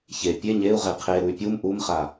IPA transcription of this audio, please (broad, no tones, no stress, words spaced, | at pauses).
çe pʲe ɲeu̯ʁe qʰeɾuy̯ pʲum ʔumχa